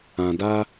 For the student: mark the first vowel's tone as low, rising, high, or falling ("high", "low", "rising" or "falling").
low